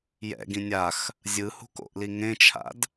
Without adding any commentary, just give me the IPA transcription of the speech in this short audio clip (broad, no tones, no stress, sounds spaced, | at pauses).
j ɛ̰ ɡ ĩ nʲ a x | zʲ ɯ h ṳ k o̰ ʔ l i ŋ ẽ t͡ʃʰ a̰ d